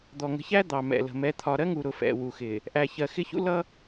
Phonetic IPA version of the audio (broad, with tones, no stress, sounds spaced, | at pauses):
d̪ ɔ˨ ŋ ə̤˨˦ ç æ˦ d̪ ɑ˨ m ɛ̰˨ l ə̤˨ m ɛ˨˦ t̪ʰ ɒ˨ ɾ ɜ˦ ŋ u˨ ɾ ʊ˨ f ɛ̰˨ w u˨ x ɪ˨ | ʔ æ˨ ç ɜ˨ x ɪ˦ ç ṵ˦ l ʌ˦